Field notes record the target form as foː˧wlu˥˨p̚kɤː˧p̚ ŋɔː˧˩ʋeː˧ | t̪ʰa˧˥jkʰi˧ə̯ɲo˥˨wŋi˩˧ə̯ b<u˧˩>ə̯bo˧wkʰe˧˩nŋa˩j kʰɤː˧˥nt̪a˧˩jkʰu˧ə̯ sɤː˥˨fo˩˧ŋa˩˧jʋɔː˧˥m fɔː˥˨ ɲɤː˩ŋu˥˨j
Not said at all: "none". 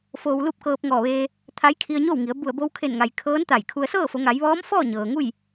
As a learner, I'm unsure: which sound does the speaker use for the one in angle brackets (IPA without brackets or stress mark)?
u˧˩